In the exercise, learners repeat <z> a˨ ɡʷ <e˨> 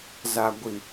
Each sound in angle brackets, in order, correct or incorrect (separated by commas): correct, incorrect